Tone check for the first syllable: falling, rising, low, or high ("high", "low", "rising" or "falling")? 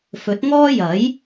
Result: rising